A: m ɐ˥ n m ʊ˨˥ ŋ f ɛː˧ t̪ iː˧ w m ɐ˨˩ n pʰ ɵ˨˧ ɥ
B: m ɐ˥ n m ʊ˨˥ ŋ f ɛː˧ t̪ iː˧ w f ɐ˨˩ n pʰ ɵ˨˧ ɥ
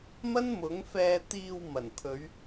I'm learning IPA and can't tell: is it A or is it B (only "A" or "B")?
A